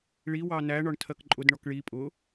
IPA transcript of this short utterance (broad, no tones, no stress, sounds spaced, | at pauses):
ɭ i w ɑ n æ ɳ ɒ ɳ tʰ ɜ k ǃʼ ʊ d ɳ ɔ k ɭ i pʼ ʊ